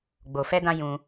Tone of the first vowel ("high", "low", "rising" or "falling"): low